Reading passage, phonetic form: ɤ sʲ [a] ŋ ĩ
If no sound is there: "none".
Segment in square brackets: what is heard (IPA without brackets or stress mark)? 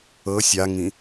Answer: a